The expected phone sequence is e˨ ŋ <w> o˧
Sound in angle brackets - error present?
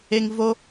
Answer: yes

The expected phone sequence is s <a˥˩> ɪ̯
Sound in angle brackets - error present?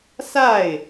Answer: no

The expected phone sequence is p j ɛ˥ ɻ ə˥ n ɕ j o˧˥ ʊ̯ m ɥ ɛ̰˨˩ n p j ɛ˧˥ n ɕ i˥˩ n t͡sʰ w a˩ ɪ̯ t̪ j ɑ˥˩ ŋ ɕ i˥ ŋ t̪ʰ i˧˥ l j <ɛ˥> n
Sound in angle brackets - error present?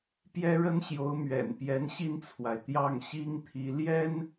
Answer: no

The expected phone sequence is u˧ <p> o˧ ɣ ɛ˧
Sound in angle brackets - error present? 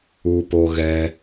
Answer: no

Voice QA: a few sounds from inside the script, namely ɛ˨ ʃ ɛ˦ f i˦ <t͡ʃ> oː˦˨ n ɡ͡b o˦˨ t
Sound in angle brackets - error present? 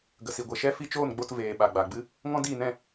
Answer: no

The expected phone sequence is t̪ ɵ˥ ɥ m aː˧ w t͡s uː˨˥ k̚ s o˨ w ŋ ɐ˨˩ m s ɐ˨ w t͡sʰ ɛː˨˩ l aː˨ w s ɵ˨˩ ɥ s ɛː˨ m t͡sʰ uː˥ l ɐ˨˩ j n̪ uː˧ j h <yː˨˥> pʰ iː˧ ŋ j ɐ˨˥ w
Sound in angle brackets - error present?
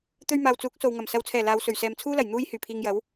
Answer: yes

